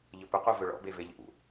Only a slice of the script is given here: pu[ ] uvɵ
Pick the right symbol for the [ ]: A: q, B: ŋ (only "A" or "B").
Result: A